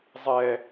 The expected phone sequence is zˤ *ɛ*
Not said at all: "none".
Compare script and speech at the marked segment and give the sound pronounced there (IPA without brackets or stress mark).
ɛ